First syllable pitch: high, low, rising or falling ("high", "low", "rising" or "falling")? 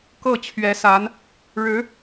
falling